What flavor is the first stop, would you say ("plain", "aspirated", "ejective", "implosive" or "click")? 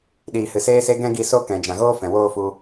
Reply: implosive